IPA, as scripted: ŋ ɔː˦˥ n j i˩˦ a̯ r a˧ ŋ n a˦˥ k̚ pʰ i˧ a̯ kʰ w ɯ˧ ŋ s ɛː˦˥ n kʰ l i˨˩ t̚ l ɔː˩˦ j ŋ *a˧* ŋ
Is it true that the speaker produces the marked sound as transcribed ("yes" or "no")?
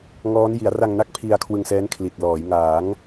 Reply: no